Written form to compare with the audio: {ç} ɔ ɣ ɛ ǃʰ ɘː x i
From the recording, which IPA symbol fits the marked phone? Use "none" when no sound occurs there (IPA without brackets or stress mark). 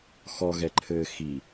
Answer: x